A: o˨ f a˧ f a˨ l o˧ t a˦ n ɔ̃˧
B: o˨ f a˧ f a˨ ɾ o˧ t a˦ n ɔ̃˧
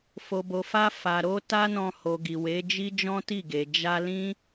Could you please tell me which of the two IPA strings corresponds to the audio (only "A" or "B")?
B